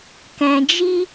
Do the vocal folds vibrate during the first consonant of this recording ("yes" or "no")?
no